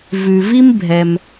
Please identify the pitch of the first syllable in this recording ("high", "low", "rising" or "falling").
low